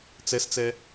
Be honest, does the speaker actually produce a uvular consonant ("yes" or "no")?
no